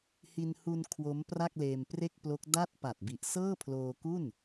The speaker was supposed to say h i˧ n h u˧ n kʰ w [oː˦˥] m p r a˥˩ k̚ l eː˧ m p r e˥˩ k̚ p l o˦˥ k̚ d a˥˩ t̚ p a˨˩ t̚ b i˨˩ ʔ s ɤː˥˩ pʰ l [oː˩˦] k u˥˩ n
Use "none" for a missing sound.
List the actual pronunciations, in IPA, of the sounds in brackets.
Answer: o˦˥, oː˧

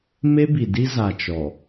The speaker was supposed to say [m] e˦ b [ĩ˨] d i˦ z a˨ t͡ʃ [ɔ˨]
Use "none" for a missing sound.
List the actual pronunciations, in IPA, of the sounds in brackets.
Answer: m, i˨, ɔ˨

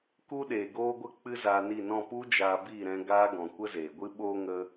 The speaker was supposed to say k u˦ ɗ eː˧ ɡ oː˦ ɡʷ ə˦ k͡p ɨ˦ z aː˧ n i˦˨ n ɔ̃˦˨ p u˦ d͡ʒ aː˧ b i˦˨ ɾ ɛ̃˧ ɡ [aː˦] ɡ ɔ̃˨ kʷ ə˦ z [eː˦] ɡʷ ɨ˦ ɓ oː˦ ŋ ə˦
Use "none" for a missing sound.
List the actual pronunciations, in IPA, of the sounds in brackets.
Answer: aː˦, eː˨

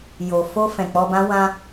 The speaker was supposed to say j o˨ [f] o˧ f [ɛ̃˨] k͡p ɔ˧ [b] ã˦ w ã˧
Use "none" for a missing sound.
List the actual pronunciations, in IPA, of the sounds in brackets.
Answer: f, ɛ̃˨, b

